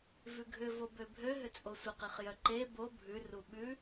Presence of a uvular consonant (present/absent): present